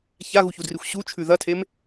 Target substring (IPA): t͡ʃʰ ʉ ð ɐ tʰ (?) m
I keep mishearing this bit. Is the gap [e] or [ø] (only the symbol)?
e